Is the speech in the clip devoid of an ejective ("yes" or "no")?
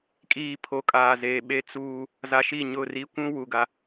no